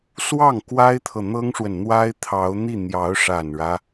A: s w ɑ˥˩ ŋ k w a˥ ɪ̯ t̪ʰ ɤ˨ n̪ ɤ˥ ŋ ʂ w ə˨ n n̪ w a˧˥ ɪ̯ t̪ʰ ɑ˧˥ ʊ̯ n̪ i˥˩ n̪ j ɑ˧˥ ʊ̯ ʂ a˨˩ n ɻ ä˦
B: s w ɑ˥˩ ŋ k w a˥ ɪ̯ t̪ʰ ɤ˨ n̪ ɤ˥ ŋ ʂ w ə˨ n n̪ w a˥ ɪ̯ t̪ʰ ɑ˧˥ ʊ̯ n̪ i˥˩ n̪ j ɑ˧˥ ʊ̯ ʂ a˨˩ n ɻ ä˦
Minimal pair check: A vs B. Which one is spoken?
B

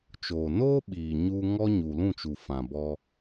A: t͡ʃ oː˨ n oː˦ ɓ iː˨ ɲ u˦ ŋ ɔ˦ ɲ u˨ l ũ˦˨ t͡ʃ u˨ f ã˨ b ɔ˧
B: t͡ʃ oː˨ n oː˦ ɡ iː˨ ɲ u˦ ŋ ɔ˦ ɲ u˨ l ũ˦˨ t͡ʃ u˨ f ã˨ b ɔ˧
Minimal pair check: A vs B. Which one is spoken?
A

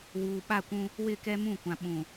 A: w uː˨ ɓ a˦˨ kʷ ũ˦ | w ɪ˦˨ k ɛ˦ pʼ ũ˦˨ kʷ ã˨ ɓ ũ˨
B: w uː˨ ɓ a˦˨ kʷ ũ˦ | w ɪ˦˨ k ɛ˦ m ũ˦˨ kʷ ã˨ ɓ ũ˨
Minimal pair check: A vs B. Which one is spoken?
B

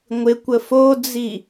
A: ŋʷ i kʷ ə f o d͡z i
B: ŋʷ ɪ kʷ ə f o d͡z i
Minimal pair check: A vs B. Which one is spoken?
B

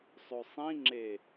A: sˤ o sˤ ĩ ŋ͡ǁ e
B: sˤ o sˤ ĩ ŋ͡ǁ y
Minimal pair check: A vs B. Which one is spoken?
A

